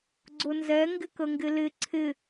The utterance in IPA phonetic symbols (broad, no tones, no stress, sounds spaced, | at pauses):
ɡ͡ǀ ʊ n z ɛ ŋ ɡ ɪ k ə ŋ ɡ ɪ l ɪ ǀʰ ɪ